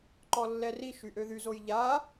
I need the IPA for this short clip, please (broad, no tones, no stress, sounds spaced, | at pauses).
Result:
ǃ ɔ lː ɛ r i ʃ y ʔ ø ð y z o j ʎ a